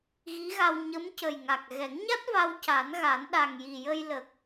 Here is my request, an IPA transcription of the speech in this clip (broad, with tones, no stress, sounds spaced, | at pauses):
ɣ i˧˥ ɣ a˧ w ɲ ə˧˥ m c ə˨˩ j ŋ a˨˩ k̚ ɣ ɛ˨˩˦ ŋ ɲ a˦˥ t̚ v a˧ w c a˨˩˦ n ɣ a˨˩˦ n ɗ a˨˩ ŋ j i˨˩ j ə˧ j l ə˨˩ k̚